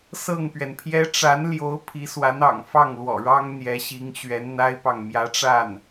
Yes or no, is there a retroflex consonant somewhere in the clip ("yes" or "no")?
yes